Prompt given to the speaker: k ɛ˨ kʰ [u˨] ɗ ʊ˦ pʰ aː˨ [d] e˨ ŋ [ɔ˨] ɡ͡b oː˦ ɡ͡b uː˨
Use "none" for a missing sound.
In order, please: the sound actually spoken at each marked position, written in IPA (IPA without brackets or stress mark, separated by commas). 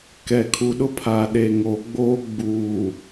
u˨, ɗ, o˨